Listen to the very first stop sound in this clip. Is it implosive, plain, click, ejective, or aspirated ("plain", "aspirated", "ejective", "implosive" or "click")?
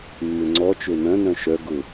click